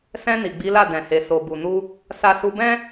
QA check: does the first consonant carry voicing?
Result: no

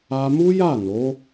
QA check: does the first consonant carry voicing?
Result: yes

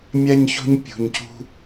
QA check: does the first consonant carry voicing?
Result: yes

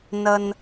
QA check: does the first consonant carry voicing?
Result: yes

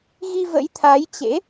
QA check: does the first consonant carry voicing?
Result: yes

